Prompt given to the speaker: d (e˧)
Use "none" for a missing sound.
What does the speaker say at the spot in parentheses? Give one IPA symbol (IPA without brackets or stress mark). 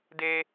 e˧